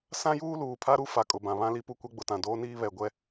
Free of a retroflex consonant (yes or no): yes